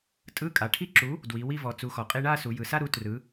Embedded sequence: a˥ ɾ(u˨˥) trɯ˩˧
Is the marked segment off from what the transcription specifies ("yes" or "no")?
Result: no